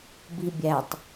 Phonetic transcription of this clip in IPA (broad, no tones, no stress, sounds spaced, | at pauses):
b i bʲ æ tˤ